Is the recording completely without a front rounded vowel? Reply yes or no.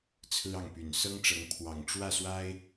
no